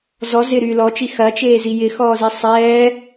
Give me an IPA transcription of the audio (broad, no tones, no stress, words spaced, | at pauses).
zɔ zɪɾyː lɔt͡ʃi xɐt͡ʃeːzi jɪxɔːzi sˤɛː